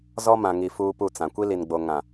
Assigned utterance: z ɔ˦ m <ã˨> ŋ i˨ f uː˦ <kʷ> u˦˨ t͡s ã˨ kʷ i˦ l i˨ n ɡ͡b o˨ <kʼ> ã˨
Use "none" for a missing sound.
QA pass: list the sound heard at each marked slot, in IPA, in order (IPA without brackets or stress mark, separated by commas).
ã˨, p, ŋ